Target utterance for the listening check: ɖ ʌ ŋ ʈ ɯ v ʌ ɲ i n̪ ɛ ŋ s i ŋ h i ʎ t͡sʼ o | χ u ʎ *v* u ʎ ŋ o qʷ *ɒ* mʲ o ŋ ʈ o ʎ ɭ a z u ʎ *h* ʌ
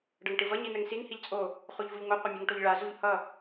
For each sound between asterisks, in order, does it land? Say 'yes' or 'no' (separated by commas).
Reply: yes, no, yes